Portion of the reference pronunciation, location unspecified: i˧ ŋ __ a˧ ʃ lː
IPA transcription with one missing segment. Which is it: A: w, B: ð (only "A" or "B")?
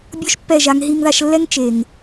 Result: B